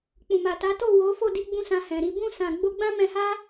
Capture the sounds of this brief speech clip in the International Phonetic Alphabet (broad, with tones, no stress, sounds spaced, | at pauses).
k͡p ũ˨ m a˨ t a˨˦ t o˦˨ w o˨˦ f o˦˨ d i˧ ɡ͡b ũ˦ s ã˧ h ɛ̃˨ ɾ i˧ b ũ˧ s ã˨ ɡ͡b o˧ ɡ͡b ã˦ m ɛ̃˧ h a˦